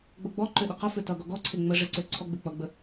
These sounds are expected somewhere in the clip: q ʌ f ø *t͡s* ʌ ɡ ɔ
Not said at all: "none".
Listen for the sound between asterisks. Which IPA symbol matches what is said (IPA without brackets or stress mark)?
t